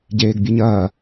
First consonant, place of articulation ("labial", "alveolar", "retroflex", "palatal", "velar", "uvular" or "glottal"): palatal